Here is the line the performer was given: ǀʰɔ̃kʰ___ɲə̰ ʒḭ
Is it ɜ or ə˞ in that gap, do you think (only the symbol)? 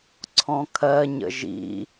ɜ